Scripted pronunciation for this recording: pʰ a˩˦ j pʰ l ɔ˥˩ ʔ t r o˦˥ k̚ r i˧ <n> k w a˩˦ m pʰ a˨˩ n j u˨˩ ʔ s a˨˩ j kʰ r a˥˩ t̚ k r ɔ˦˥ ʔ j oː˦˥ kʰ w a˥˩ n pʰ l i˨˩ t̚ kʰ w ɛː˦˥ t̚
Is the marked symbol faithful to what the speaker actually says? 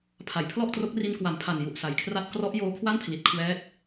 yes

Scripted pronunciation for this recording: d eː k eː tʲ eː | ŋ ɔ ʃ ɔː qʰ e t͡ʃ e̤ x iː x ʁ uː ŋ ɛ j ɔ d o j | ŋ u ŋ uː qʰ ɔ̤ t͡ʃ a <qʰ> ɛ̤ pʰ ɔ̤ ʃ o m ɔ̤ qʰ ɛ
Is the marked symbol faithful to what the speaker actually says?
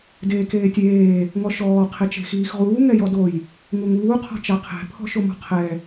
yes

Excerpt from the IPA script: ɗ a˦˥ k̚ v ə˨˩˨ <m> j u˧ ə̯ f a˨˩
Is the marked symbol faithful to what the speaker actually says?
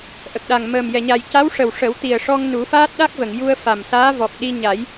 no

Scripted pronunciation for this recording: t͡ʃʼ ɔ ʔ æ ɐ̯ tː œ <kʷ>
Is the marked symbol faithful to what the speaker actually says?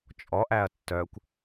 yes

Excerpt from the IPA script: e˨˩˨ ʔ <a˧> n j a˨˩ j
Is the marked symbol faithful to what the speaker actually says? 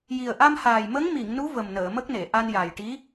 yes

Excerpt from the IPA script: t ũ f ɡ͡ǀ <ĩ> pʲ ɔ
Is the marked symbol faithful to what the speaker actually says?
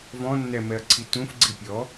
no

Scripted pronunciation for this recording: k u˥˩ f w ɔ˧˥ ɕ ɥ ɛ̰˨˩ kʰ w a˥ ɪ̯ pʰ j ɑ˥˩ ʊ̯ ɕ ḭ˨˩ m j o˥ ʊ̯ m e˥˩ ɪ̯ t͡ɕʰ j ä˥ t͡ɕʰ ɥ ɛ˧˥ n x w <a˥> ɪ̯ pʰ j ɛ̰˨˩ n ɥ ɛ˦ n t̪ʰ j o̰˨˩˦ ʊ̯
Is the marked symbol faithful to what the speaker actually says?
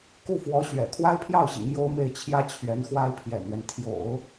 yes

